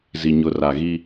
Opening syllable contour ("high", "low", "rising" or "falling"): low